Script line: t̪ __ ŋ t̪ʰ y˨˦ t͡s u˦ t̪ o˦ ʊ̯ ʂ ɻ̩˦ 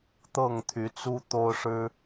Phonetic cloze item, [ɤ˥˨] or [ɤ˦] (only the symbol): ɤ˥˨